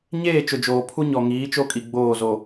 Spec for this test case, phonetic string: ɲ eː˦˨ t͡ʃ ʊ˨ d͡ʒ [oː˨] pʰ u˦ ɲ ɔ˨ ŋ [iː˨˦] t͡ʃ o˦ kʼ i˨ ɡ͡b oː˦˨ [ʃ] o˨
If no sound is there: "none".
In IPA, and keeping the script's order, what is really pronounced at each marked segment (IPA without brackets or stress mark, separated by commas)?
oː˨, iː˨˦, z